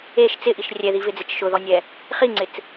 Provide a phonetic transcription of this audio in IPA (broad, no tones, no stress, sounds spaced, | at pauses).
e ʃ t͡s ɪ ʔ i ʃ rʲ ɛ ð i v ɪ d͡z e t͡ʃ ʃ ʊ ð ɔ nʲ ɛ | χ i ŋ͡ǀ ɪ t͡s